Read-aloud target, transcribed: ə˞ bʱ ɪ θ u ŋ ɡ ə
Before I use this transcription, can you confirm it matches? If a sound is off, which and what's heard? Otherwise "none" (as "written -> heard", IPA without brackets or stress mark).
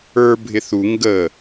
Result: none